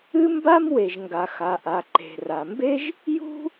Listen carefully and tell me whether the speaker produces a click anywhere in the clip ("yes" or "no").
yes